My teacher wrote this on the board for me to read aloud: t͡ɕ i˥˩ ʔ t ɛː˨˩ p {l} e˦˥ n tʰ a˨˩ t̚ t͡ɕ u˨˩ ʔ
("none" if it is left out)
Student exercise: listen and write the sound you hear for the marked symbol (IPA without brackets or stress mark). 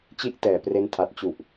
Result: r